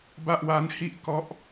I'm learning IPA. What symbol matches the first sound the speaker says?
b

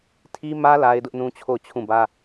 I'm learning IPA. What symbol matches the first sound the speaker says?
tʰ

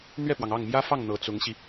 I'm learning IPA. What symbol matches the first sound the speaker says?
n̪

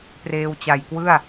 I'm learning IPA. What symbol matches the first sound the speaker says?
p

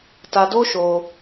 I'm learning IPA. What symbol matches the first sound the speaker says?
t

